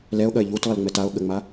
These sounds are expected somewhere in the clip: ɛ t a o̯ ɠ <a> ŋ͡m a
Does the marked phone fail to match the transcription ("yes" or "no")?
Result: yes